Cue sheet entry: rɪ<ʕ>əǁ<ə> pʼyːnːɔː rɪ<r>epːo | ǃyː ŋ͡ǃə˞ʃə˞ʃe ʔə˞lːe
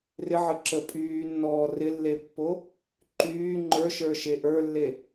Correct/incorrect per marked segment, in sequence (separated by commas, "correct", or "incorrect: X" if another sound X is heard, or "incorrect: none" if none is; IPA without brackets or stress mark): correct, correct, incorrect: lː